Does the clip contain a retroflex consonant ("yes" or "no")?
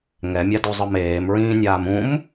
no